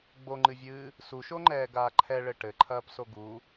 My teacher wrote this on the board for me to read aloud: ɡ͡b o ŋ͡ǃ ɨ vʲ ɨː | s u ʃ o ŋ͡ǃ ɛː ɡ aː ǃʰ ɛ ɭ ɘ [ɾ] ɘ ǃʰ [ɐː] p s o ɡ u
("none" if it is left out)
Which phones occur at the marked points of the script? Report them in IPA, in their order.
ʈ, ɐː

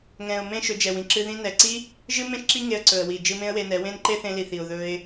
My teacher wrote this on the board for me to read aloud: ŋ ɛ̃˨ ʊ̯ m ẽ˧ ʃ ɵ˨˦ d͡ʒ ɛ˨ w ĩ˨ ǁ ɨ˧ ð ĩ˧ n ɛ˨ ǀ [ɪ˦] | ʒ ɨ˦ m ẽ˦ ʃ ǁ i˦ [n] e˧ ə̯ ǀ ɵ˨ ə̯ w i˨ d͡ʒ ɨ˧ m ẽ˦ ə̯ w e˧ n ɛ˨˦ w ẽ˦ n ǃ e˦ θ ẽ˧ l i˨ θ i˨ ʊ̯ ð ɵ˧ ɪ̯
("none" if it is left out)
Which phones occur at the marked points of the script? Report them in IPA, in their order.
i˦, ŋ

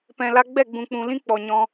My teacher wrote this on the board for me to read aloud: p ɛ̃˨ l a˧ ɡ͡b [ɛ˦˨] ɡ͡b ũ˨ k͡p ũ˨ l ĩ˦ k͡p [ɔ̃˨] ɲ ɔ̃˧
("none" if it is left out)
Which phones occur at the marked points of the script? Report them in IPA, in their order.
ɛ˦˨, ɔ˨

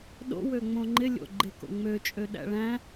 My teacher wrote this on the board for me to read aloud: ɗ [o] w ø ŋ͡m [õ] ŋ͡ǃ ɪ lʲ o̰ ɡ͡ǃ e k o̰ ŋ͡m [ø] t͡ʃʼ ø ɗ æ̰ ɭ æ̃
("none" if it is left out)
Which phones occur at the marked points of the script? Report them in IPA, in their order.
o̰, õ, ø

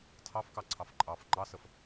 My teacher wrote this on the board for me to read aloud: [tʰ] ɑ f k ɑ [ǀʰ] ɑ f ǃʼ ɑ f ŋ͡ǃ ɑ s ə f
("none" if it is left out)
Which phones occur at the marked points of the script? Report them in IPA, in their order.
tʰ, ǀʰ

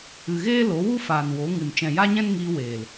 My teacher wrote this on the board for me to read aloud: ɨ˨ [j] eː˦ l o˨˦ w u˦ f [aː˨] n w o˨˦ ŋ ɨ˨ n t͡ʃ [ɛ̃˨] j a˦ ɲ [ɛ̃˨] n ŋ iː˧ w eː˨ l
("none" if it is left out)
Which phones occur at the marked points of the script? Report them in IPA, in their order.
ɣ, aː˨, ɛ̃˨, ɛ̃˦

